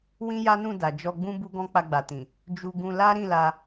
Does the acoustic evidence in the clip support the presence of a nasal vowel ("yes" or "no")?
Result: yes